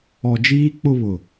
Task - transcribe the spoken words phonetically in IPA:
ɔ˨ d͡ʒ iː˦ k͡p ʊ˦ β ʊ˨

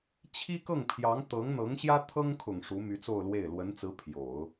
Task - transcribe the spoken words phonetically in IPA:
t͡ɕʰ i˥ k ɤ˥˩ ŋ pʰ j ɑ˧˥ ŋ t̪ ɤ˧˥ ŋ n̪ ɤ˧˥ ŋ ɕ j ä˥ t̪ʰ ɤ˥ ŋ kʰ ʊ˨˩ ŋ ʂ u˧˥ m y˧˥ t͡s o˥˧ ʊ̯ l w e˥˩ ɪ̯ l w ə˧˥ n t͡s ɹ̩˧˥ pʰ j o˨˩˦ ʊ̯

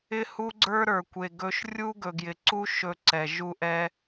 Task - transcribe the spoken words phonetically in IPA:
ɪ˦ h u˦ ɡ͡ǀ ə˞˦ ɾ ə˞˨ kʷ e˨ ɡ ɵ˦ ʃ rʲ u˦ ɡ ɵ˨ ɡ j ɪ˨ ǀ u˦ ʃ ɵ˦˨ ǀ ɛ˨ ʒ u˦ ʔ ɛ˦

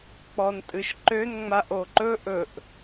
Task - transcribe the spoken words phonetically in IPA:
k͡p ɔ n tʼ ɨ ʃ ǃ ø n ŋ͡m a ʔ o ǃ ɵ ʔ ɵ ʔ

